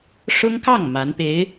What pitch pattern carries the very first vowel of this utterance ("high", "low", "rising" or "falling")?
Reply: high